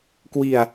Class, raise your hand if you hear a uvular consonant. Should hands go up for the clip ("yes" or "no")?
no